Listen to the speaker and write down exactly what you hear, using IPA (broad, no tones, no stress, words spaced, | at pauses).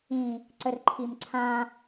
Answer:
ĩ | ǀərǃʰimǀʰã